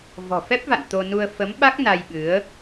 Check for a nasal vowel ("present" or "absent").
absent